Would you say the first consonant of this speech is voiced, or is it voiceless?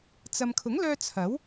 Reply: voiceless